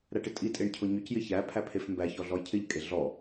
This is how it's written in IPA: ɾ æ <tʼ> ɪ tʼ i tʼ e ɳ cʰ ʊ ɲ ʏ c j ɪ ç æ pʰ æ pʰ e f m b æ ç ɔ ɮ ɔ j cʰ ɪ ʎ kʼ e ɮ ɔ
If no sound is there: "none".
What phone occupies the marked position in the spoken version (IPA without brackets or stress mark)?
ʈ